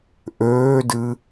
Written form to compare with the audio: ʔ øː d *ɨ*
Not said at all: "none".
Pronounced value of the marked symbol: ɨ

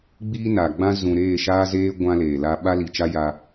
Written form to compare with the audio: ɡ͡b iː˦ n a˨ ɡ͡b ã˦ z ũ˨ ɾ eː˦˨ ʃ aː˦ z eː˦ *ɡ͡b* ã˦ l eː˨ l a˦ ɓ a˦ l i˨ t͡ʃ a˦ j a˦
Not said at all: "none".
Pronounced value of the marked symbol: ɡʷ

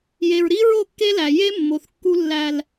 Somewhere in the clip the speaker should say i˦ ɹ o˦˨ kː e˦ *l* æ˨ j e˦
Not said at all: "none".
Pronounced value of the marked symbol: l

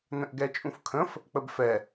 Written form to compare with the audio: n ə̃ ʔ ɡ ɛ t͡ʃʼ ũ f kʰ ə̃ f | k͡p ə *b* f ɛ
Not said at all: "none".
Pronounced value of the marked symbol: b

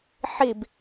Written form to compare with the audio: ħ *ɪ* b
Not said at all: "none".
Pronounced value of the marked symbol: i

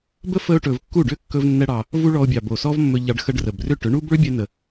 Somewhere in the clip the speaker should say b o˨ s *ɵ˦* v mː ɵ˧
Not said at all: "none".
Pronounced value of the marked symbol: ɔ˦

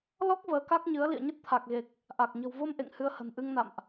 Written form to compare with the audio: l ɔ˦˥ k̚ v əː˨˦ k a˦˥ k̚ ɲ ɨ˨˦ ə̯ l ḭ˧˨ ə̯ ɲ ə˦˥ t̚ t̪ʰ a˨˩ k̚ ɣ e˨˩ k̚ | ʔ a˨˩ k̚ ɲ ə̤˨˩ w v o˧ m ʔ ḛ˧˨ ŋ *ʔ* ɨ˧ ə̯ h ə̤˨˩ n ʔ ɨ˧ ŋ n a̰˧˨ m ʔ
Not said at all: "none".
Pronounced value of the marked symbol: h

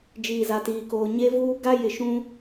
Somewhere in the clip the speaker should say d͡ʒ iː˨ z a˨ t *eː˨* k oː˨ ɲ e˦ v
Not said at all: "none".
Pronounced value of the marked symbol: iː˨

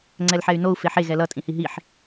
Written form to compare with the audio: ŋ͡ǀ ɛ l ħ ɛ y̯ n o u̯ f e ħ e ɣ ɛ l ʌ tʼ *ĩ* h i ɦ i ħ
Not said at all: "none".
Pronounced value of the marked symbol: ĩ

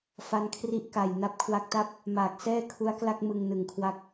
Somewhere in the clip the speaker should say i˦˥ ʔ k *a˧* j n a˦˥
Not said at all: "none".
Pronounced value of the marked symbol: a˨˩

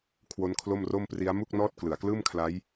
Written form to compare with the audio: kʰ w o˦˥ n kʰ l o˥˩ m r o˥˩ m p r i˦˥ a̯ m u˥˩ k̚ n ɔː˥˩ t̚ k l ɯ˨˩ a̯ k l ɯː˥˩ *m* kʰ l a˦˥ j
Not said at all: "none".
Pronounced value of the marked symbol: m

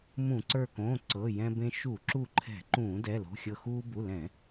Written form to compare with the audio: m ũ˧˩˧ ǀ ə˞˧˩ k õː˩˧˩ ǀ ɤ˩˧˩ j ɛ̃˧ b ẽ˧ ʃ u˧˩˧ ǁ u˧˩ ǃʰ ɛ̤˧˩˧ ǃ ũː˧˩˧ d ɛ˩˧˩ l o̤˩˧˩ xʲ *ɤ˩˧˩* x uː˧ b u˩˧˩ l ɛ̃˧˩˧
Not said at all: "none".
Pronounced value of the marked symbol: ɤ˧˩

